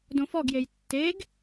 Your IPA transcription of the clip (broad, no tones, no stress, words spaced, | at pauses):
dõfɔɡjej tːeɡ